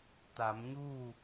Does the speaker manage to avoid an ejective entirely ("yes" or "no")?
yes